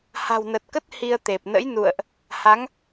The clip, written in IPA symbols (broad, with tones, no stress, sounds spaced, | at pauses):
h a̤˨˩ w n ə˨˩ t̚ k ə˦˥ t̚ h i˧ ə̯ t̪ e˨˩ p̚ n ə̰˧˥ j n ṵ˧˨ ə̯ ʔ | h a˨˦ ŋ